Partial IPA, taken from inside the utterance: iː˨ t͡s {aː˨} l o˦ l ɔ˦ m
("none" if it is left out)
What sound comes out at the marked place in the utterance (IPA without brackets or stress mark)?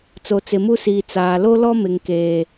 aː˨